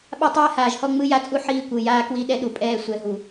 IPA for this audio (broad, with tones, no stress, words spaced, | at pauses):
ɓa˦tˤɛː˦haː˨ʒhɔ˦ ŋ͡mɯ˦ja˦t͡sʼu˦ ħiː˦kʷɯ˨ jaː˦kwi˦ ɗɛ˦ɗu˨pʼɛː˦˨ sʷɛ˨ ɦu˨